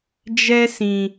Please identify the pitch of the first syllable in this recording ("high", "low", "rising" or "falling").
high